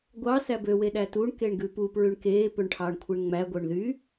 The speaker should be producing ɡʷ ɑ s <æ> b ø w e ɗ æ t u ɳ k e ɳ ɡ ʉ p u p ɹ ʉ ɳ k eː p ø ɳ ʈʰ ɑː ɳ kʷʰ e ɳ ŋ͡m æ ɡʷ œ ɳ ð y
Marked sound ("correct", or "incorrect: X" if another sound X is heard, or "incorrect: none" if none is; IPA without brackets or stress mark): correct